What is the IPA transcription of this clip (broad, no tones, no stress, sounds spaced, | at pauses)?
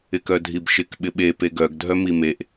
ɪ k œ dʱ i b ʃ ɪ k ɓ ɪ ɓ e p e ɡ œ ɡ dʱ œ m i m e ʔ